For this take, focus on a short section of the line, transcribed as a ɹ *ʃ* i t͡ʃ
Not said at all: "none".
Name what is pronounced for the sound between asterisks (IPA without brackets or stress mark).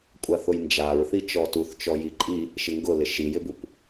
θ